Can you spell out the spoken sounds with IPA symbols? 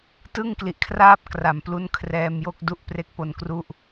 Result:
tɯ˥˩ŋkli˨˩ʔ kʰraː˥˩p̚kra˩˦m plu˦˥nkʰrɛː˧mjo˥˩k̚ du˥˩ʔpre˦˥k̚po˧nkru˥˩ʔ

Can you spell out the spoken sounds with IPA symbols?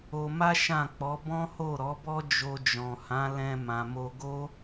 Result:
o˧ma˦ ʃã˦˨k͡pɔ˨˦ bɔ̃˦ho˦˨ ɾɔ˨˦bɔ˦ d͡ʒo˧d͡ʒɔ̃˨hã˨˦ lɛ̃˧ mã˨mo˧ ɡo˦

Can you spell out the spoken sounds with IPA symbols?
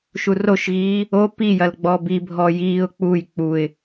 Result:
ʃuroʃɣiː | o pijɐl ɡ͡bɔbibʱɔ jiːʊ̯ k͡puj k͡puɪ̯

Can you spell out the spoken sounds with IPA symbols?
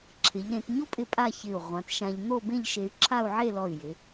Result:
ǁʰɪ˩˧ʎɾẽ˩˧tɲo˥pʼɪ˧ pʼa˥˧çɪ˧˩u̯ ʁʷã˩˧tʃã˧ʎ n̪o˥˧bẽ˥˧ʎ ʃe˧y̯ǁʰa˥˧u̯ʕe˥˧lɔ˧˩y̯ jɪ˩˧

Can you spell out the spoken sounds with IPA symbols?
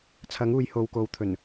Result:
t͡sʰɐ˨˥ŋuː˨j ho˨wko˨˥wt̪ʰɵ˨˩n

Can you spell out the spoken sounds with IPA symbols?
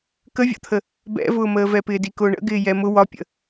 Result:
kəvʲɔ̰t̪ʰə | bɛ̰vʊːməːvɛ pɪːdikʊːɳə̰ ɡɪːjɛmʊ wɒpʲə̰

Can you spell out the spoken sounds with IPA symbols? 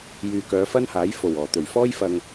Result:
jyː˨kœː˨˧fɐ˥n haː˨˥jfo˨˩wɔː˨˩ t̪ɵ˨˩ɥfɔː˥j fɐ˧ŋ

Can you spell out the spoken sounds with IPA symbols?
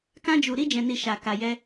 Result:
kã˦d͡ʒu˧ ɾi˦d͡ʒɛ̃˧ni˧ ʃa˧ka˧jɛ˦

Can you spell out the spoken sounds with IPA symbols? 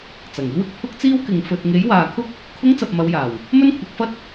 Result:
t͡sɐ˨˩ŋ iː˧wɪ˨k̚ pʰʊ˥k̚t͡siː˥wkɪ˨ŋ fɵ˨t̚ŋe˨˥j waː˨kʰʊ˥k̚ | kʰʊ˧ŋ t͡sɐ˨p̚mɐ˨˧wjaː˨˩w | mɵ˥nkʷʰɐ˨˥k̚fɐ˥t̚

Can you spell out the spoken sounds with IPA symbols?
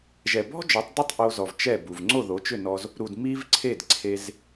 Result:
ʒɛ˨˩bɔ̤˥d͡ʒɔ˩˥tˤdu˥˩tˤ ʔo˧zɔ˨˩v t͡ʃɛ˥˩bu˨˩v ŋ͡ǀo˥˩ðo˩˥t͡ʃʏ˥˩nɔ˧z | ɾu˨˩d mi˥v ǀʰe˥˩dǀʰe˧z

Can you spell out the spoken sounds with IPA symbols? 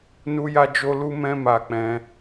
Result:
nu˦ja˦d͡ʒo˦lu˦ mɛ̃˦ma˧k͡pɛ̃˧

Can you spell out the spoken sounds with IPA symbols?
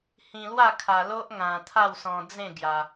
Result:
hĩ˧lwa˥˧ kʰa˧lo˦ʔ ŋã˧ t̪ʰa˥˧wsɔ̃˧ d͡zẽ˥˧ ɡja˧

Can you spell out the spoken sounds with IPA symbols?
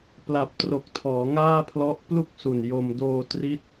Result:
pla˨˩p̚tro˨˩k̚tʰɔː˩˦ ŋaː˥˩pʰlɔ˦˥ʔ plu˥˩k̚su˨˩n jo˧m doː˧tri˦˥t̚

